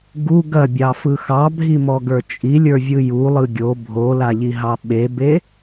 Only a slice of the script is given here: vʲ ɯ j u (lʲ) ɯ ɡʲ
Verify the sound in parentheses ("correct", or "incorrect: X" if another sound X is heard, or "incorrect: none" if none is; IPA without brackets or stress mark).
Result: incorrect: lˠ